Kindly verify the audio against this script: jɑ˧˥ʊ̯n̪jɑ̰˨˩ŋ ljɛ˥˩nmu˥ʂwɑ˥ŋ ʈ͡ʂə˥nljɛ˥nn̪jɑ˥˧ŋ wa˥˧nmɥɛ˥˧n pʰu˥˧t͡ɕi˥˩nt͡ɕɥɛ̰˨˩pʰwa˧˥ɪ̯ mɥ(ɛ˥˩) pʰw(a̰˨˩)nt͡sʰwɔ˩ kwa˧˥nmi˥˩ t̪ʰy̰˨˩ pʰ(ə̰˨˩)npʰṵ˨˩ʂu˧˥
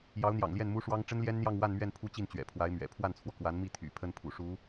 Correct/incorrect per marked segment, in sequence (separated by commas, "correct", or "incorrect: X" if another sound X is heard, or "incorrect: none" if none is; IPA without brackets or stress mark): incorrect: ɛ̰˨˩, incorrect: a˥˩, incorrect: ə˥